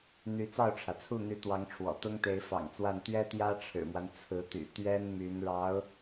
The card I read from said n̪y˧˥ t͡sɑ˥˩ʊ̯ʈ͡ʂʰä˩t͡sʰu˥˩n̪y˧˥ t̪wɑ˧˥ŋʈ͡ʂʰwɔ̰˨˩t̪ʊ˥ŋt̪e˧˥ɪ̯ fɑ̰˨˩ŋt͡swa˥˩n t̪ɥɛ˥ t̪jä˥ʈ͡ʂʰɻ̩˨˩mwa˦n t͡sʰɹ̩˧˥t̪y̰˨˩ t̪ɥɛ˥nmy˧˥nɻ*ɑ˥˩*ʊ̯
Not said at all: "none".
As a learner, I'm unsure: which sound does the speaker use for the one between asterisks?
ɑ˧˥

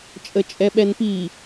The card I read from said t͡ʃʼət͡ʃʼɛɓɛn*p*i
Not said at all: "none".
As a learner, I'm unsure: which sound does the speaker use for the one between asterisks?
p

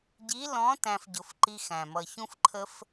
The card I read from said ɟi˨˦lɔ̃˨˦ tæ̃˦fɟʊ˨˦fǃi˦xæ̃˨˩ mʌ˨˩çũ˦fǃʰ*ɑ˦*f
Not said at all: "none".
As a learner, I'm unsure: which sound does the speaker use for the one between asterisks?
ə˦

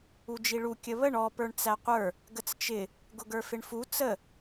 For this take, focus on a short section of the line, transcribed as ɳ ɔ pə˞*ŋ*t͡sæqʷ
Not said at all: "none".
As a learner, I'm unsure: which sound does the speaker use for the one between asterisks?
ɳ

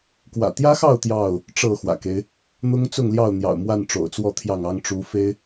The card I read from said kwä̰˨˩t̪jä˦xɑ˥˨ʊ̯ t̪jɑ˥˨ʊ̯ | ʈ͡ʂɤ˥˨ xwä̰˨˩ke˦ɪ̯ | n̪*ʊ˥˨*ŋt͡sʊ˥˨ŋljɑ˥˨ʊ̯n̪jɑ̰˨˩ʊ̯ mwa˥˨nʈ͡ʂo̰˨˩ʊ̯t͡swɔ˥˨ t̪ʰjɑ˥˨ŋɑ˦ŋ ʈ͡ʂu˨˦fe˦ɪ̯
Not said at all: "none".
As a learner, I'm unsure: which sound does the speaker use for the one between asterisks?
ʊ˦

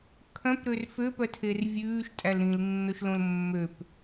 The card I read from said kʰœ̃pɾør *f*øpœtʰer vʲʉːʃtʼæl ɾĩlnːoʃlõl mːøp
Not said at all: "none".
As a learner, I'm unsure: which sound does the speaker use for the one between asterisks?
f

